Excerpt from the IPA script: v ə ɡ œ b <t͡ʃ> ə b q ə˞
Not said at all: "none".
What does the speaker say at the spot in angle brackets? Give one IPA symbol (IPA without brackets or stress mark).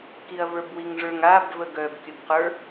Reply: kʲ